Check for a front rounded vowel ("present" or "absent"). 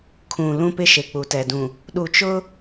absent